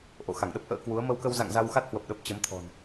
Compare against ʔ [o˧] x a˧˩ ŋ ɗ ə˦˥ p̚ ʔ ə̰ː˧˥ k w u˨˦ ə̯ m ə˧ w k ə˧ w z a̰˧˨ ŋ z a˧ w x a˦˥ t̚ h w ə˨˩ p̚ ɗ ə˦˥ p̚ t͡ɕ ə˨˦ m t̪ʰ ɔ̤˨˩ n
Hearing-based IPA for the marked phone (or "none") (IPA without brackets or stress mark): o̰˧˨